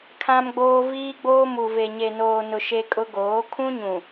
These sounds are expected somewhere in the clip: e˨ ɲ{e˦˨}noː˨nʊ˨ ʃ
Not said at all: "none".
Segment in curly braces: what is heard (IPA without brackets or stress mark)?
e˨